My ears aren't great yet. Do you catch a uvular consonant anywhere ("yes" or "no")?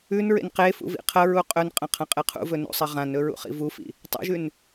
yes